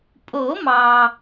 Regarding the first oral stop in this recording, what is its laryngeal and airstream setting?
ejective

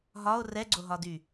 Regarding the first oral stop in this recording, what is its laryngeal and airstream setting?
click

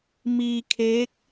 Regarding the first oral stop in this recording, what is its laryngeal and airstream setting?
aspirated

